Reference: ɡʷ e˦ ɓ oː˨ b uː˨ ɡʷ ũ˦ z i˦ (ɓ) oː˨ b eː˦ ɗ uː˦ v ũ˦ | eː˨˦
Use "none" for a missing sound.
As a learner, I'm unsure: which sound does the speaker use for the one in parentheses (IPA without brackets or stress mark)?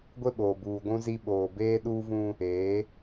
ɓ